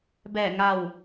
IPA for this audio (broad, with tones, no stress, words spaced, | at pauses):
bɛː˧˩ŋa˧˩w